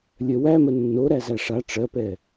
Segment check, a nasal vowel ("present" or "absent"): absent